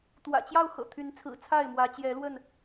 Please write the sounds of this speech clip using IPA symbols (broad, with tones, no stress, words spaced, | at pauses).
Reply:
t̪wä̰˨˩t͡ɕjɑ˥˨ʊ̯xɤ̰˨˩ t̪ʰy˨˦nt͡sʰɹ̩˨˩t͡sʰa˥˨ɪ̯ mwä˨˦ t͡ɕjɛ˨˦lwə˥˨n